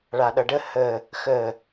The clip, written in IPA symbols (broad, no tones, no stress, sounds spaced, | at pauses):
ɭ a ɗ ʌ ɖ ə h ə | x ə